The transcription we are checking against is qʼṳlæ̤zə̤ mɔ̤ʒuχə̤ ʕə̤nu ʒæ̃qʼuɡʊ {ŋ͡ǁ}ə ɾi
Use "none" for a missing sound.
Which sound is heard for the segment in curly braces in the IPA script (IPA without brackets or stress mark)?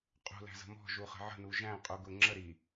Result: ŋ͡ǁ